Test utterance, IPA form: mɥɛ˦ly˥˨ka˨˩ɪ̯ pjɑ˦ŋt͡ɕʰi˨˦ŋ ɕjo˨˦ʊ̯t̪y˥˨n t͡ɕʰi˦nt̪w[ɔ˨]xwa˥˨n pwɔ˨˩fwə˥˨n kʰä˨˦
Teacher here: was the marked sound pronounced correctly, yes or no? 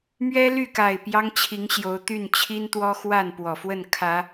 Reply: no